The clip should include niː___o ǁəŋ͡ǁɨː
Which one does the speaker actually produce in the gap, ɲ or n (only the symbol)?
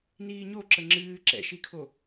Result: ɲ